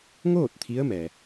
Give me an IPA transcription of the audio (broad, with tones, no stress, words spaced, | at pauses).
ŋoː˥˨t̚ t̪ʰi˧˥ə̯mɛː˩